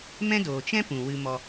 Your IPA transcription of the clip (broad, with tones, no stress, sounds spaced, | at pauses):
m ɛ̃˦ d oː˨ t͡ʃ ɛ̃˦ p ũ˨ w ɨ˧ m ɔ˧